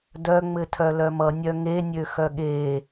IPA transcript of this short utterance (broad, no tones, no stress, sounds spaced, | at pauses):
d œ ŋ͡m ɘ tʰ œ l œ m ʌ nʲ œ ŋ e nʲ ø x œ ɠ e